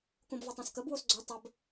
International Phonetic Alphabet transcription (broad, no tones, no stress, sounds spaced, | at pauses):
k õ b v o tˤ ã s k ə b w o s ɡ͡ǀ o tˤ ə b